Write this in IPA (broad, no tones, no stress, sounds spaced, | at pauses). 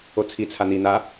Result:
o t͡sʰ i t͡sʰ a n̪ i n̪ a